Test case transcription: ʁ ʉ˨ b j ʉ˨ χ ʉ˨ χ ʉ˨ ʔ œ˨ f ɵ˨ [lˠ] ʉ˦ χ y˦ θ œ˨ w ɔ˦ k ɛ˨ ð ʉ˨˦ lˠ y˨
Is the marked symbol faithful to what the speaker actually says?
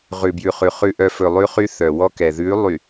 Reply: yes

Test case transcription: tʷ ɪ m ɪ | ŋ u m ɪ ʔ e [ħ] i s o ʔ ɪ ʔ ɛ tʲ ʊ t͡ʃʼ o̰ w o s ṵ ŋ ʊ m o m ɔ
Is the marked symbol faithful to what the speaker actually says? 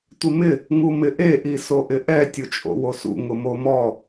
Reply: no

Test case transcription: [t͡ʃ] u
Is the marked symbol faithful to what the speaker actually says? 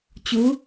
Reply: no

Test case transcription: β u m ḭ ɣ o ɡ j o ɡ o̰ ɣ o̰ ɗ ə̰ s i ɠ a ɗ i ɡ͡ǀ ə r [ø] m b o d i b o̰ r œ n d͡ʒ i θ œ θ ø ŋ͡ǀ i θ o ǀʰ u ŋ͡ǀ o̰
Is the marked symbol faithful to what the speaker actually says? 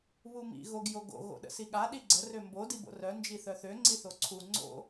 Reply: yes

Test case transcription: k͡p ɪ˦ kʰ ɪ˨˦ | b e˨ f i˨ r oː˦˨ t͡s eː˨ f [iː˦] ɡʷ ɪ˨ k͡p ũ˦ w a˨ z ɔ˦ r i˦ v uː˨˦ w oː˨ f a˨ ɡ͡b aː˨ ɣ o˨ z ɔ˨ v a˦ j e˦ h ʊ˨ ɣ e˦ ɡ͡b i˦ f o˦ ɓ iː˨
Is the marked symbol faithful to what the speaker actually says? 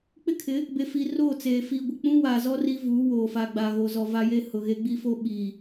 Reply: no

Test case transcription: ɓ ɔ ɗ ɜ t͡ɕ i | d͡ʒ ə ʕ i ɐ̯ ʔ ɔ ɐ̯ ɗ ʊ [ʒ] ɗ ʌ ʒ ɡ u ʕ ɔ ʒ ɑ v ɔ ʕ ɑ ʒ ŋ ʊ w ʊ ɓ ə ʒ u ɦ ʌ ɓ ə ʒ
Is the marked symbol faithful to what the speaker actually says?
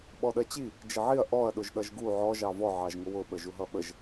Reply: yes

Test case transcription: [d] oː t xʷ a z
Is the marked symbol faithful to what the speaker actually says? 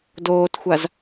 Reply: yes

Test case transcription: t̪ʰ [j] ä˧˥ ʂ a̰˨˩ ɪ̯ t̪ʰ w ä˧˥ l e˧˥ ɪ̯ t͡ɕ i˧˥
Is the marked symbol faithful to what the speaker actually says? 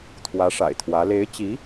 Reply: no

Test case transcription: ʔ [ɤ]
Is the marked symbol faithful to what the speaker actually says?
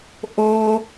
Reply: no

